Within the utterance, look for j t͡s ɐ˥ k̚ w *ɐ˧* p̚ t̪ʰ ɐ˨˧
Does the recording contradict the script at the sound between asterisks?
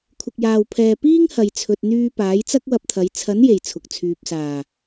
no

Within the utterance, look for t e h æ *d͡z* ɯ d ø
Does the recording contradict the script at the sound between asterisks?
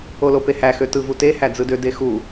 no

